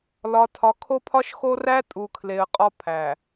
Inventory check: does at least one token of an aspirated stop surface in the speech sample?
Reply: yes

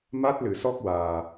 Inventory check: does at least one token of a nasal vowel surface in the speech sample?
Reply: no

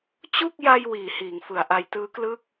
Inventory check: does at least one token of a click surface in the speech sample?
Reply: no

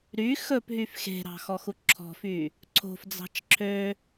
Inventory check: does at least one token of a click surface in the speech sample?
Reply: yes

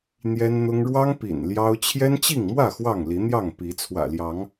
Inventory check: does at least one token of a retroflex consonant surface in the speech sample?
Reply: yes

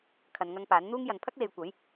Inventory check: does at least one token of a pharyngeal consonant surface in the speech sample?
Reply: no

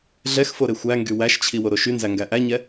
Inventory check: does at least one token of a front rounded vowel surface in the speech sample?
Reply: yes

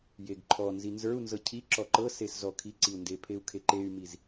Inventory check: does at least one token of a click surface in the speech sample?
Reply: yes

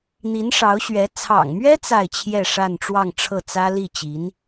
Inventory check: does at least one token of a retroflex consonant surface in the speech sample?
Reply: yes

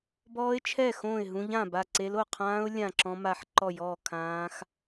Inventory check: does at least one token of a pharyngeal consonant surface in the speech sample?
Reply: yes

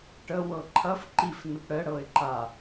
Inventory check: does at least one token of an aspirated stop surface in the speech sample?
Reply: yes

